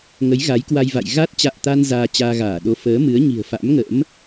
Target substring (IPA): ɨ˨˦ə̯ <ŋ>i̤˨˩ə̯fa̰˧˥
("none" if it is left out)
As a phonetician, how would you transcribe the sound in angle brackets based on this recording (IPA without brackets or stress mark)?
ɲ